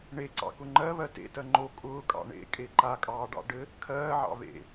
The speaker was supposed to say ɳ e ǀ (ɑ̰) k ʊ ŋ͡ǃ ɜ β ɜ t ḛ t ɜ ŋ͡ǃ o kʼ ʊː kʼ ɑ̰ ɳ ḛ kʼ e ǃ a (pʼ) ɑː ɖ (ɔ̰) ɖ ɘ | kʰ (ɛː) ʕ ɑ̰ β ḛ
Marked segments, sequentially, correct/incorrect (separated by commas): correct, incorrect, incorrect, incorrect